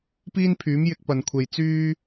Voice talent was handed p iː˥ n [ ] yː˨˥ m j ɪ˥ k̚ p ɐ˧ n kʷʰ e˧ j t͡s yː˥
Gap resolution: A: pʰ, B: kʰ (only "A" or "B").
A